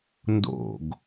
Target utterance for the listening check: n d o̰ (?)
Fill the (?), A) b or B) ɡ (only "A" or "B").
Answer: B